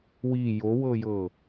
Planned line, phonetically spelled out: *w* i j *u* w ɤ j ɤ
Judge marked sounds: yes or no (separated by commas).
yes, no